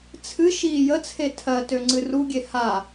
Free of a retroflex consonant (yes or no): yes